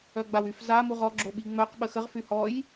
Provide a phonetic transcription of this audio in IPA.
œ ɡ͡b a w y f z a m u ʁ ɔ ɡ͡ǁ o ɓ i ŋ͡m œ q ɓ ə x ə ʁ f y h ɔ j

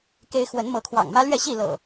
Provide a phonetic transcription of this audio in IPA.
k e˦ ɪ̯ x w ə˨˦ n m ɤ˨˦ kʰ w ɑ̰˨˩ ŋ m ä˦ l ɥ ɛ˥˨ ɕ i˥˨ l ɤ̰˨˩

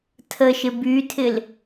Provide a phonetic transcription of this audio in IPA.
tʰ ə ʃ ɪ b y tʰ ɪ l

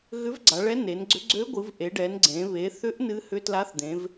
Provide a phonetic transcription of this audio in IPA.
ɣ ʏ˧˥ v ɡ͡ǀ a˩˧ ɭ ɛ˧˥ n e˩˧ n ɡ͡ǀ ʏ˧˥ ɡ͡ǀ ø˧˥ ɡʷ ɨ˩˧ v ʔ e˩˧ ɖ ɛ˩˧ n ɡ͡ǀ ẽ˩˧ β e˩˧ θ ʏ˧˥ ʔ n ɨ˧˥ h ʏ˧˥ t l a˧˥ θ d̪ ẽ˩˧ v

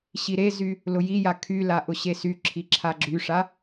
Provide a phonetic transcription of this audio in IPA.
ɕ i ɾ e z y | l ʊ j i j a kʰ y l a ʔ ʊ ɕ e s y ǁʰ i ǁʰ a ɡ͡ǁ y ʂ a

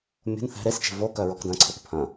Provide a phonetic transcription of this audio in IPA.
mʲ o̤ n θ ɛ̤ ɾ e s t͡ʃ e̤ v o k œ ɹ ɔ k d ɐ̃ ǀʰ œ k pʰ ɐ̃

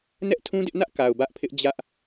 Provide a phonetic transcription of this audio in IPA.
n ɛ˦ ʔ tʰ ũ˦ d ɪ˦ ʔ n ä˦ ʔ k a˨ ʊ̯ b ä˦ ʔ pʰ ɪ˦ ʔ d͡ʑ ä˦ ʔ

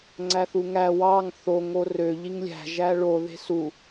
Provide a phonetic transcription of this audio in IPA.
ŋ͡ǀ æ θ u ŋ æ w ɑ ŋ θ o ŋ o r ø ʎ i ŋ lʲ æ̤ ʒ æ ɭ o ð e̤ s u

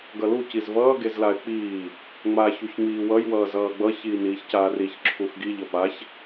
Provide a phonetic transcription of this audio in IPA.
ɡ ʌ l u c i z v ʌː ɡ e z l a ɪ̯ k͡p iː | ŋ͡m a ç u ç ŋ͡m iː w ʌ j w ʌː z ʌː ɡ͡b ʌ ç iː n iː ç c aː r i ç ǁʰ u x ɡ i ʎ ʌ p a ç

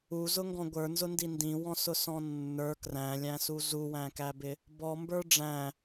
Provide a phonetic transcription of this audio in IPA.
u z ʊ ŋ ɡ ɔ̃ ɡʷ ə˞ n z ʊ n d i n d ĩ w ɔ̃ s ʊ s ɔ̃ nː ə˞ k r æ̃ lʲ æ̃ s u z u w æ̃ k æ b ɪ | b ɔ m b ə˞ ɖ͡ʐ æ̃

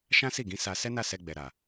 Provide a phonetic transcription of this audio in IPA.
ʃ ã˦ s i˦˨ ɡ ĩ˨˦ s a˧ s ɛ˦ n a˦˨ s ɛ˧ ɡ͡b ɛ˨ ɾ a˨

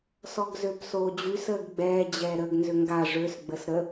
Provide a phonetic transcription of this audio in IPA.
s ɔ ɡ z ø b s oː d͡ʑ y s əː ɡ ɡ͡b ɛː d͡ʑ ɛː ɾ əː ɡ n z ʏ ŋ ɡ a ʐ ø s ɡ͡b ə s ɾ ə

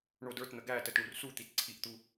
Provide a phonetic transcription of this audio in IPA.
ɳ o d ə˞ t n̪ ə ɡ æ t ə t ɳ u r s u t̪ i t ǀʰ i ʔ t̪ u

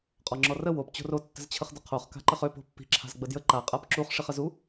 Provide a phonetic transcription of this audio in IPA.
qʼ ɔ ŋ͡ǁ ɔ r ə w o p t͡ɕ o̤ r o tː ə̤ z t͡ɕʰ ə χ d ə qʰ o χ k a̤ ǃ ə χ ø p o̤ pː i̤ ǁʰ a̤ z ɡ͡b ə d j ə ǃ a qʼ a p ǁ u χ ʂ i χ ə z u

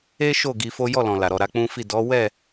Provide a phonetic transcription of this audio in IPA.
e˦ ʃ o˦˨ ɡ i˧ f o˦ j ɔ˦˨ l ɔ̃˨ l a˨ ɾ ɔ˨ ɾ a˧ k͡p ũ˦ f i˦˨ d ɔ˨˦ w ɛ˦˨

